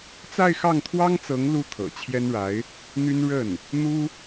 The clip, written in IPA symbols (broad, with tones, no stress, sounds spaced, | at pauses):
t͡s a˥˧ ɪ̯ x ɑ˥˩ ŋ t̪ʰ w ɑ˥ ŋ t͡s ɤ˧˥ ŋ l u˥ t̪ʰ ɤ̰˨˩ t͡ɕʰ j ɛ˥ n ɻ a˧˥ ɪ̯ | n̪ y˥ n ɻ ə˥˩ n | n̪ u˥